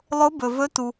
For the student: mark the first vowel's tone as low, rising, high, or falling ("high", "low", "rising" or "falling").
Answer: rising